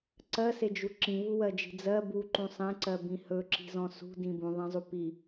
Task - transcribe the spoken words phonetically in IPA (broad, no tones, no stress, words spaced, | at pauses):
ǀɜsed͡ʒu ǁĩvuwɜd͡ʒi̤ d͡zɜ buǃũ sˤẽǀɜbĩ hɵǁi̤zɔ̃ sṳdĩ bũðˤẽzˤu pi